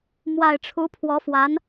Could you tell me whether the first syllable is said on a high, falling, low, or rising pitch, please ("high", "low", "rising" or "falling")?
low